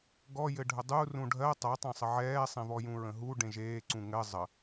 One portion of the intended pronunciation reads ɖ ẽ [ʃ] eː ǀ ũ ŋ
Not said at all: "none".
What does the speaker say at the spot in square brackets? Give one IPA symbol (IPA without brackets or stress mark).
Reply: ʒ